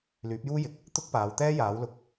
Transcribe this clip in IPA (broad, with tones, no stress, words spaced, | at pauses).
lyː˨˥p̚juː˥jɪ˨k̚ | t̪ʊ˥k̚paː˨˧wt̪ɛː˥ jaː˨˥wlʊ˧k̚